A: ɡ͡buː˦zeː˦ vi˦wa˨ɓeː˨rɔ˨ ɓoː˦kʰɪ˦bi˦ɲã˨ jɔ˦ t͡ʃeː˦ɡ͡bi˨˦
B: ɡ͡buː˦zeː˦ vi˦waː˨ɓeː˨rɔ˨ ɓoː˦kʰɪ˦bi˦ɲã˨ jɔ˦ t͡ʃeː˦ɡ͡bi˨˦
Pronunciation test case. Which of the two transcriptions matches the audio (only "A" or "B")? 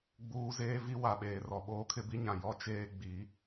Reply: A